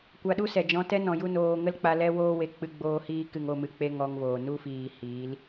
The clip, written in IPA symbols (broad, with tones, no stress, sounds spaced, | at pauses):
kʷ a˧ ɗ u˦ s ɛ˨ d͡ʒ ɔ̃˧ t ɛ˦ n ɔ̃˨ j u˦ n oː˧ ŋ ə˦ l k͡p a˧ l ɛ˦ w oː˦ w e˧ k͡p ɨ˧ ɡ͡b oː˧ h iː˧ k ɨ˨ ŋ o˦˨ m ɨ˨ k͡p e˦ ŋ ɔ˧ ŋ v oː˨ n u˦ f iː˨ h iː˨˦ l